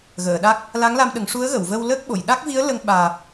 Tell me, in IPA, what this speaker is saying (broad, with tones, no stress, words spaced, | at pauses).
ɣəː˨˩˨ɗa˦˥k̚ | la˧˥ŋla˧mɗə˨˩˦ŋ ʂu˧˥ə̯ɣə˨˩˨wvə˧w ləː˦˥k̚ɓo˨˩˨j ɗa˦˥k̚vi˧˥ə̯ lə˧ŋ ɓaː˨˩p̚